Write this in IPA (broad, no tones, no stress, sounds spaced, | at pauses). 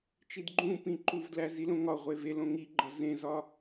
t͡ʃ i d ɡ͡ǃ ũ p ĩ ǃ u v d l æ z i l õ ŋ ɒ ʁʷ e v e l õ ŋ i ɡ͡ǃ ɒ z ẽ z ɒ